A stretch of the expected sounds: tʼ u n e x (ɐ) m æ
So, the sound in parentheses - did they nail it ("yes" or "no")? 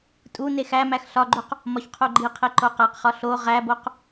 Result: no